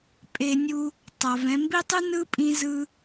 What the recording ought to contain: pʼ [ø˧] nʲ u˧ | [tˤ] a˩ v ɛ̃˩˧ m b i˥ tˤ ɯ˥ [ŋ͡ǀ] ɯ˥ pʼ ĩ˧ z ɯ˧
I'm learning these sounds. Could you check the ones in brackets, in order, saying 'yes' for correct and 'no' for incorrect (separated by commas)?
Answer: no, yes, no